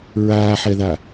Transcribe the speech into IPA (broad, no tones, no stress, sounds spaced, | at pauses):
ɹ aː ħ ɛ ð a